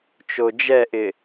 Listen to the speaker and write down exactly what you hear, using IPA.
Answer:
t͡ʃ o d͡ʒ ɛ ʔ ɪ

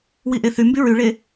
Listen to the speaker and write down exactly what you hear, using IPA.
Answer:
w i ʔ e θ y m b y ɹ y ɭ e

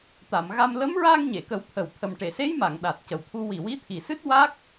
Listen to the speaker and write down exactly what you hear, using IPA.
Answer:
t̪ a˨˩˨ m ɣ a˧ m l ə˧˥ m ɹ aː˧ ŋ ɲ e˨˩˨ k ə˨˩˦ w t̪ʰ ə˨˩ w t̪ʰ ə˨˩ m ʈ e˨˩˨ s e˧˥ j m a˨˩˨ ŋ ɗ a˨˩ t̚ c ə˨˩ w t̪ʰ u˧ w i˨˩ w i˧˥ t̪ʰ i˨˩ s ɨ˦˥ t̚ w a˦˥ k̚

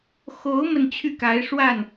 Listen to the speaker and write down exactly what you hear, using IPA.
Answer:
x o˧˥ ʊ̯ m ə˥˧ n t͡ɕʰ y˥˩ k a˧˥ ɪ̯ ʂ w a˥˩ n

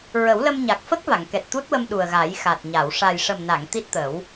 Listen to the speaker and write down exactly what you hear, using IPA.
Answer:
ɹ ə˨˩˦ w l ə˧ m ɲ a˨˩ k̚ f ə˦˥ k̚ v a˨˩˨ ŋ k ɛ˨˩ t̚ t̪ u˦˥ t̚ w ə˧ m ɗ u˨˩ ə̯ ɣ a˨˩˦ j x a˨˩ t̚ ɲ a˨˩˨ w ʂ a˨˩ j ʂ ə˨˩ m n a˨˩˨ ŋ t̪ i˦˥ t̚ t̪ ə˨˩˦ w

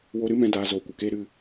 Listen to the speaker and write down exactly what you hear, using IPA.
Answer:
w o˧ ɾ ɨ˦ m ɛ̃˧ d aː˨ z oː˨ kʷ ə˨ k eː˦ ɾ ɨ˦˨

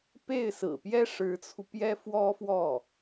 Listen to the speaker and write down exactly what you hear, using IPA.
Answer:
p e˥˩ ɪ̯ s ɹ̩˨˩ p j ɛ˥ ʂ ɻ̩˧˥ t͡sʰ u˧ p j ɛ˥ f w ɔ˥ f w ɔ˥˩

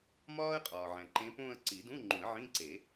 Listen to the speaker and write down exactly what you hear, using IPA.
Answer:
m ɒː˥ ə̯ qʼ ɒː˨ ʕ æ̃˨ ǃ ẽ˧˥ p õː˥˧ ə̯ ǀ i˨˩˦ d ũ˧˥˧ ŋ͡ǃ ũ˨˩˦ ə̯ ʕ ĩ˧˥˧ ǀ e˨˩˦

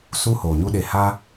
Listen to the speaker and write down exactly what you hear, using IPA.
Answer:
s u˦ h oː˨ ɲ u˦ ɗ e˧ h a˦

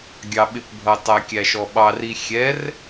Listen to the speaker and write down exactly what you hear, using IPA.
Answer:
ɡʲ ɑ ɓ ɪ p bʱ ʌ tˤ æ kʲ æ ʃ ɔ ɓ ɑ r i xʲ ɛ r

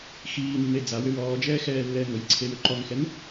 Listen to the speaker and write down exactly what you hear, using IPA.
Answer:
x iː nː e d͡z a w ʏ w ɔː d͡ʒ ɛː x ɛː lː ɛː ŋ ɵ j ǀʰ e w ʏ ǃ ɔ ŋ x ɛ n

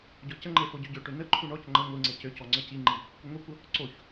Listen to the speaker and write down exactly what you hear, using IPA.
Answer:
ɟ ɔ c ə ŋ͡ǃ e f o ɟ ø ɟ ø ʈ ø n ə ǃʰ u ɳ ɔ c ŋ͡ǃ ə ŋʷ i ŋ͡ǀ e c ø c ɔ ŋ͡ǀ ə c i ŋ͡ǃ i | kʷ ə ŋʷ i kʷ ə | ǀ o ç

